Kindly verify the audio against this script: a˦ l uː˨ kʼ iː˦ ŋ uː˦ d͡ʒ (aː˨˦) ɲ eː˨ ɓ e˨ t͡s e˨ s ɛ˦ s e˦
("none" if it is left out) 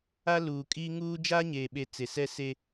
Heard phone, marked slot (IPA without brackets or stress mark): aː˦